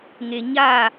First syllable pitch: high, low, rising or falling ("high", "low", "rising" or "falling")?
low